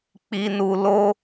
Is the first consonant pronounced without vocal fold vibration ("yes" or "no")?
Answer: yes